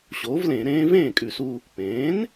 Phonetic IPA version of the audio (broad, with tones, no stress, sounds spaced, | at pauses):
ɕ oː˩˥ v l ẽ˧˩˧ ɾ ẽː˦˥ v ẽː˥˩ kʼ ʉ˧˩˧ s uː˧ | p ẽː˩˥ n